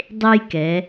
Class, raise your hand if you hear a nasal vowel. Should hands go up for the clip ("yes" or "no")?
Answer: no